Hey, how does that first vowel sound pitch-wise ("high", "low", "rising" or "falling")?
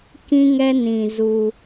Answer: high